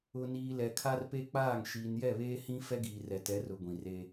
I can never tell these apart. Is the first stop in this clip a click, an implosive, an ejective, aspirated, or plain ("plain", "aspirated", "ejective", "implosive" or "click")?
aspirated